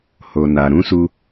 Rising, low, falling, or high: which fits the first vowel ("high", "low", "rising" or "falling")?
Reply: low